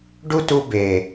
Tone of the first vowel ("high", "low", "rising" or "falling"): high